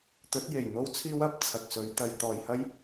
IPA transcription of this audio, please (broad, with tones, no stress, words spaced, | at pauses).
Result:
t̪ɵ˨˥t̚je˨˩j n̪o˥wt͡sʰiː˥wɐ˨p̚ t͡sʰɐ˧k̚sɵ˨˥ɥ t̪ɐ˨˧j t̪ɔː˨jhɐ˥j